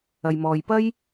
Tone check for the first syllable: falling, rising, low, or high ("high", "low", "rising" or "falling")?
low